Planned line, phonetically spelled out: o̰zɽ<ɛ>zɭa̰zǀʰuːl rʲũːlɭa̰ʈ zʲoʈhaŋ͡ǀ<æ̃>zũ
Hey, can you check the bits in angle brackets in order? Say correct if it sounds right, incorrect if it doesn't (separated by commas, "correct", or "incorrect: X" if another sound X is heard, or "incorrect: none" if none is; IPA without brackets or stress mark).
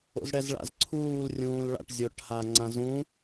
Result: correct, incorrect: ã